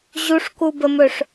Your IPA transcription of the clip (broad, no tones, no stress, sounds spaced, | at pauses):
ʑ u ʂ k u b ə m ɵ ʂ